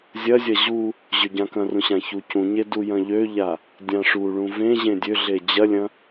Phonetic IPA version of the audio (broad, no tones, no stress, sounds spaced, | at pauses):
zʲ ɐ zʲ ɐ ʑ u | ʑ ø ɟ ã k ɐ̃ r ũ ɕ ã ç u c ũ ɲ e d u j ɐ̃ ʎ ø ʎ a | dʲ ã ʂ u ɭ ũ v ẽ ʑ ẽ dʲ ø ɮ e d͡ʑ ɐ lʲ ɐ̃